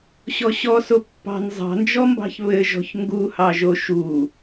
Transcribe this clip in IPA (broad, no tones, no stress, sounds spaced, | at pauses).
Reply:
ɕ ɔ ɕ ɔ s o pː ɑ̤ n zˤ ɑ̤ n d͡ʒ ɔ m b ɑ̤ ç β ɘ ʒ ɔ̤ ç ŋ ɡ u h ɑ ʒ o ʃ u